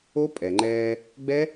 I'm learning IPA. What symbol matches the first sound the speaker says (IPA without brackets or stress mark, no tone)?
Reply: o